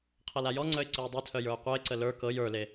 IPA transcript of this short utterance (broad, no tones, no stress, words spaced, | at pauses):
qʰɤlajɔŋ͡ǀœɪ̯ ǀɜʊ̯dˤetʰœ jə˞ʊ̯qʷɜɪ̯ǀə lə˞ kɤj ə˞le